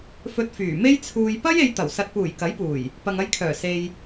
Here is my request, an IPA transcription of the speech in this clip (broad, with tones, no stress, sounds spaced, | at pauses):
f ɵ˧ t̚ f yː˨˩ m e˥ j t͡sʰ uː˧ j p ɐ˥ j e˧ j t̪ ɐ˨˩ w s ɐ˨ t̚ p uː˨˩ j k ɐ˨˥ j p uː˨˩ j | p ɐ˨ ŋ ɐ˧ j kʰ œː˨˩ s e˧ j